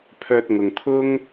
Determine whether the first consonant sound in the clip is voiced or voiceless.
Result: voiceless